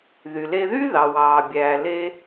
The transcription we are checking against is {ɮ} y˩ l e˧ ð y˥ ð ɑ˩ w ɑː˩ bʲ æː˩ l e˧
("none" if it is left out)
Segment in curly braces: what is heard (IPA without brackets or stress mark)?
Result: ð